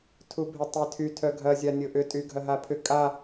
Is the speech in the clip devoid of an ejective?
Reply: no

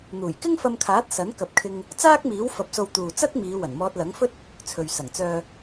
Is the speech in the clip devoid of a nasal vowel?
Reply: yes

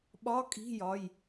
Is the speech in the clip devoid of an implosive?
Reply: no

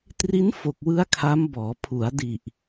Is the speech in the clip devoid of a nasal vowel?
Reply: yes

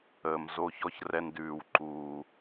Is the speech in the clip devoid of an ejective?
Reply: yes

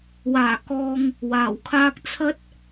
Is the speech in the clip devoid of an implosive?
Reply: yes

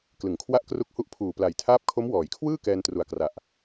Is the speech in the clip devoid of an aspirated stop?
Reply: no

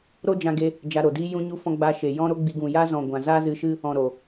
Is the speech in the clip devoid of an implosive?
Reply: yes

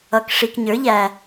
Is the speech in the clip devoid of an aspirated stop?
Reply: yes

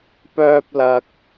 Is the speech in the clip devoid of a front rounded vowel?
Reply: no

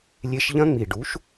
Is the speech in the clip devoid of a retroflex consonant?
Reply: no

